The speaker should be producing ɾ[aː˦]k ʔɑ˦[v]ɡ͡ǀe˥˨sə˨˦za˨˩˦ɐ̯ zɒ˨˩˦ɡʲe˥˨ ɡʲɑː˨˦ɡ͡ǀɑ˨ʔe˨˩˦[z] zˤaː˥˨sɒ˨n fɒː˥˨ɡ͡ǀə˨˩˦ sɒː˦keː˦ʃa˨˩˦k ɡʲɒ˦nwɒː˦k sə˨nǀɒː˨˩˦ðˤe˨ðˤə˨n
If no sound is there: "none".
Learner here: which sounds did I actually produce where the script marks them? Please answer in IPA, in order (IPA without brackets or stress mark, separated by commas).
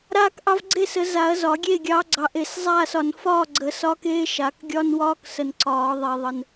aː˦, v, s